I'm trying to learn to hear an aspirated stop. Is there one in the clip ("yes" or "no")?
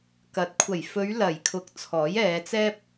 yes